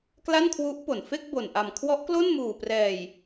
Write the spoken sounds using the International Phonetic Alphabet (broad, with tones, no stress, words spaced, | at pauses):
kla˥˩nkʰwu˦˥ʔpo˨˩n fe˥˩k̚bo˨˩nʔa˨˩m kʰwɔ˦˥ʔklo˥˩nmuː˨˩prɛː˨˩j